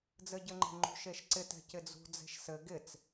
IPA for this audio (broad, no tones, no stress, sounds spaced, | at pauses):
d͡z ɘ ɟ ɘ ŋ͡ǃ e̤ ŋ͡ǃ ṳ ʃ e ʃ ǀ ɪ t ɛ̤ c ɪ d͡z ṳ d͡z e̤ ʃ s ɘ ɡ ɪ t͡s